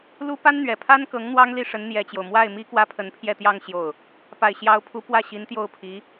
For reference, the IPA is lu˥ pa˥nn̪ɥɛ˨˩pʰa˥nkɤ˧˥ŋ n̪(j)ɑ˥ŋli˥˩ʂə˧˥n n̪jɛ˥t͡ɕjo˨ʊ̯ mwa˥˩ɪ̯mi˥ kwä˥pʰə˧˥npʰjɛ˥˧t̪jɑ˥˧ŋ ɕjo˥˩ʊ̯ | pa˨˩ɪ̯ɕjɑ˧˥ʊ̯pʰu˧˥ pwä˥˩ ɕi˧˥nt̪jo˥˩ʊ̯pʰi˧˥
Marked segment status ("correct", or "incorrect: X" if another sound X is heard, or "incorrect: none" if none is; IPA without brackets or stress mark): incorrect: w